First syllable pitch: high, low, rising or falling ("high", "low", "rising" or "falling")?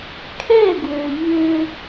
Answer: falling